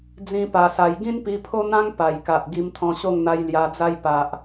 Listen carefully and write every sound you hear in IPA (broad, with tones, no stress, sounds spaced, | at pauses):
d͡z ĩ˦ p a˧ s a˧ j ɡ ĩ˦ n p i˧ pʰ o˦ n̪ ã˦ ŋ p a˨˩ j k a˨ ʔ ɡ i˧ m t̪ʰ ɔ̃˧ ɕ o˥˧ ŋ n̪ a˧ j l j a˧ d͡z a˦ j p a˨ ʔ